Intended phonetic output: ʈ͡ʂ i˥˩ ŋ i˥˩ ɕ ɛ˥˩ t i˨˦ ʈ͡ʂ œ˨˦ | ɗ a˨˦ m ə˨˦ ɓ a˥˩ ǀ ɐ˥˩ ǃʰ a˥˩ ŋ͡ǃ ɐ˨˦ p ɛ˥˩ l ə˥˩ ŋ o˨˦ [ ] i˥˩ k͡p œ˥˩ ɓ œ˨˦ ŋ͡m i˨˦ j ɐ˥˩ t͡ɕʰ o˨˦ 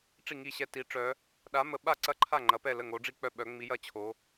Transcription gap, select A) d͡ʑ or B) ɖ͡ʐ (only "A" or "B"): B